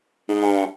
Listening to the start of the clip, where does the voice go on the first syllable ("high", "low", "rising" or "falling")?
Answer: low